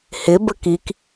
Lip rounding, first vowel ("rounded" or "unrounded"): unrounded